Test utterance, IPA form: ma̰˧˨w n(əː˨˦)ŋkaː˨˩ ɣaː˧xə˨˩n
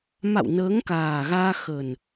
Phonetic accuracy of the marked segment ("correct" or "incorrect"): correct